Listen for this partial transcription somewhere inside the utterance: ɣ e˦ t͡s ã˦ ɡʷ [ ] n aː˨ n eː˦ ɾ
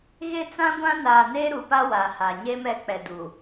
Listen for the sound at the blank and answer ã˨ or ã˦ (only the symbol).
ã˦